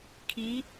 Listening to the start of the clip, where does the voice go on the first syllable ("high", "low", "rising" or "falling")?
rising